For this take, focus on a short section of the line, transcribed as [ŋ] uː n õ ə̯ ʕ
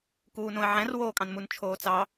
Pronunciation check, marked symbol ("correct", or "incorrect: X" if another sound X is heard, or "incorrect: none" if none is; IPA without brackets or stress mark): incorrect: k